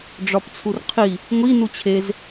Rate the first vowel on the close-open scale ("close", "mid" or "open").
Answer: open